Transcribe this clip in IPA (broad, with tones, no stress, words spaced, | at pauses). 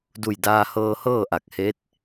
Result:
du˧˩jdaː˧hɤː˧hɤː˥˨ ʔa˧˩k̚he˧˥t̚